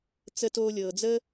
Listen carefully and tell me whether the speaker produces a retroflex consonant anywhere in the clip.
no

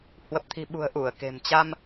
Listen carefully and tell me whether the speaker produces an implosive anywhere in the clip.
yes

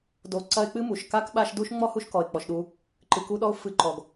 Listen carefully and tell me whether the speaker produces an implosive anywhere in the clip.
yes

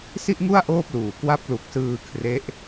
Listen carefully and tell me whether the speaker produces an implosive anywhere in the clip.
no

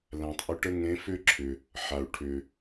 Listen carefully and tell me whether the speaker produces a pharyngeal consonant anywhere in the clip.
yes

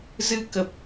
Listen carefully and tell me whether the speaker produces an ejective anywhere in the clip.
no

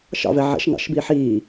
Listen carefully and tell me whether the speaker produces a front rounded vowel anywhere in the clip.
no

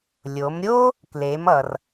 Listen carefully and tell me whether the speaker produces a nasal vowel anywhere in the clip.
no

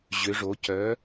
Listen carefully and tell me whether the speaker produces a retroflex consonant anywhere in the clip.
yes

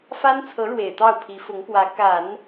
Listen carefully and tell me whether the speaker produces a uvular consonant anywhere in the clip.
no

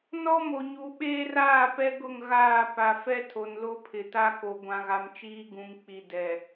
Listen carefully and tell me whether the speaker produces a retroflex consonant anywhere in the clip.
no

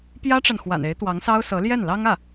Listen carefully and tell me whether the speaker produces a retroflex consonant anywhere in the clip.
yes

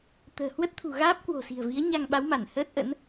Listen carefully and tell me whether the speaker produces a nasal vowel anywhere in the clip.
no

